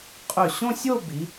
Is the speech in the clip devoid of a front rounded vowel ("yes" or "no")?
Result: no